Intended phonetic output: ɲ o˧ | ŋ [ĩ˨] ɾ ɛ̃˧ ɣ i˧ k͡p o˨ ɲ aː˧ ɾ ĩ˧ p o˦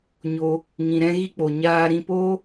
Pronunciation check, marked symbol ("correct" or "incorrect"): correct